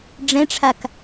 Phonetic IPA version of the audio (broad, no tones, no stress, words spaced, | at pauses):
ɖ͡ʐɛ̃ʈ͡ʂʰak